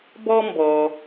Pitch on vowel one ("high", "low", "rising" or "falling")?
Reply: high